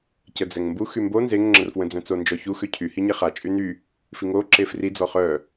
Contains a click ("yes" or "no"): yes